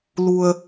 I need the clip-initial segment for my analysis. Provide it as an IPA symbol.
l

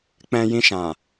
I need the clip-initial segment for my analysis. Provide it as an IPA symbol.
k͡p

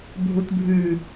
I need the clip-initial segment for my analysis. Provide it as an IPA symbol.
bʱ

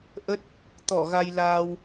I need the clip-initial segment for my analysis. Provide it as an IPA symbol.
ʔ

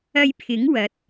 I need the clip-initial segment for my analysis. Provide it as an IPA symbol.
ɐ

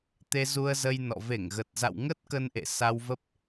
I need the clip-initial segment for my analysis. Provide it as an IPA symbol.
t̪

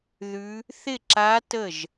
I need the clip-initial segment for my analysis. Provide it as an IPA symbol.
ð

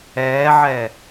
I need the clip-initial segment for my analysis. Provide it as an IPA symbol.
ɛː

